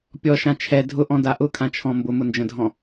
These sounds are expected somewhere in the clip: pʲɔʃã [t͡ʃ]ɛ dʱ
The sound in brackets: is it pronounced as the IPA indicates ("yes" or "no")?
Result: no